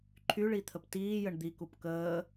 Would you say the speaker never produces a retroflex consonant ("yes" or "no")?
no